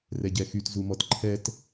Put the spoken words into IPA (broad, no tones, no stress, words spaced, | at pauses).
rɛɟɛxyt zumɔtǃʰɛt